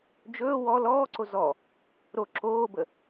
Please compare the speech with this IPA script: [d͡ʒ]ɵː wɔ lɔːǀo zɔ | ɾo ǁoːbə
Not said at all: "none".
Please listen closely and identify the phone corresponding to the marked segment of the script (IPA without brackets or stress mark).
d͡ʒ